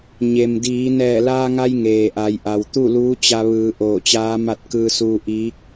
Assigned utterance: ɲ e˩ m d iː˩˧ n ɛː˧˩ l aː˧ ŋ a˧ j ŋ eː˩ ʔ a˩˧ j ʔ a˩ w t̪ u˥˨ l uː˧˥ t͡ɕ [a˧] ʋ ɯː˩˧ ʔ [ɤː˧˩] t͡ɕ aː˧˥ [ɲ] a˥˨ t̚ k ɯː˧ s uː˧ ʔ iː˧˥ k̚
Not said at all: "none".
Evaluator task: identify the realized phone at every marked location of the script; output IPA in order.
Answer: a˧, oː˧˩, m

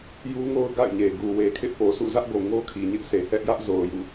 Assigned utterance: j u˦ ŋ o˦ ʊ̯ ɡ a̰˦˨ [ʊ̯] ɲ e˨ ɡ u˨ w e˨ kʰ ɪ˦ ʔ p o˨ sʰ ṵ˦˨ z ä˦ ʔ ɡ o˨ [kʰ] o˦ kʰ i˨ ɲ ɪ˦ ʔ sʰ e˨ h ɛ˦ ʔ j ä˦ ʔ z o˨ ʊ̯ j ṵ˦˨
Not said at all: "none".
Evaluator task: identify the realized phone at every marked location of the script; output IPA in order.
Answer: ɪ̯, ŋ

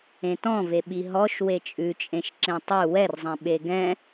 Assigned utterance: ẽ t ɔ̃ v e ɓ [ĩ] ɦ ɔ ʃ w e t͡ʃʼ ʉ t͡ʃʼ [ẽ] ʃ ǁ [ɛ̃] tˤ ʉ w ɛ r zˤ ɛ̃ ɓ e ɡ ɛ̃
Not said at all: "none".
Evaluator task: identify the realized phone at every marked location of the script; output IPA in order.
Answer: i, ẽ, ẽ

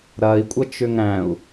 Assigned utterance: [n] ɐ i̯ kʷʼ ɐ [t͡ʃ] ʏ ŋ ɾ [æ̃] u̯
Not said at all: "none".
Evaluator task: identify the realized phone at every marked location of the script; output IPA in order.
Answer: ɾ, t͡ʃ, æ̃

